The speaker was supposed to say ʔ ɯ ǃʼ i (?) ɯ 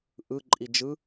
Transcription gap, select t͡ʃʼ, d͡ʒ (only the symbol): d͡ʒ